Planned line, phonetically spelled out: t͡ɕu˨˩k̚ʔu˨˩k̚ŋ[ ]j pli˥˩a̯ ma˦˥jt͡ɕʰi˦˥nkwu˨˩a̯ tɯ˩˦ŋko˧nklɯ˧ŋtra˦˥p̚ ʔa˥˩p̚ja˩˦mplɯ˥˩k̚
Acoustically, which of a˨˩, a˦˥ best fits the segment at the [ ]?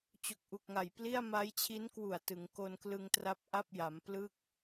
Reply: a˨˩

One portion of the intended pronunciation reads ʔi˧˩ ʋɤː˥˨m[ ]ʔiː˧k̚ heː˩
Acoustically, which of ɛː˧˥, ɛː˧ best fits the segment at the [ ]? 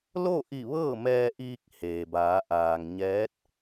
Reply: ɛː˧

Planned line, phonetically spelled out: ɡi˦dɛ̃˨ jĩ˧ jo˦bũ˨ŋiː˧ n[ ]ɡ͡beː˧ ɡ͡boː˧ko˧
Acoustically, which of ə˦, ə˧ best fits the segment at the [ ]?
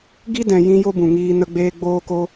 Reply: ə˧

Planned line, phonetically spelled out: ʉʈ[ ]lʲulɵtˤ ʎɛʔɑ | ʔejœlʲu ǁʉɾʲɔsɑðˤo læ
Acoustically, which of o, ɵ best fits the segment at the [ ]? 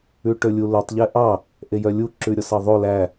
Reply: ɵ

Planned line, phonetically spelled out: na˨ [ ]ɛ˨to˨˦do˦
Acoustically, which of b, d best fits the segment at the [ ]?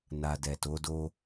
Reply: d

